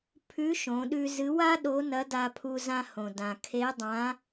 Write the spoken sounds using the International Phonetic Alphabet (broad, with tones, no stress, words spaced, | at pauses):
pʰʉ˧˥ʃõ˩˧ɗʉ˧ zɨ˧˥ wa˥ ɗo˧˥nɐ˧˥da˧pʰu˧ zã˧hõ˩dã˩ kʰe˧˥dˤã˧˥